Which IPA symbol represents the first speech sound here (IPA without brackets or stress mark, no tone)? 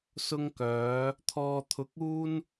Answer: s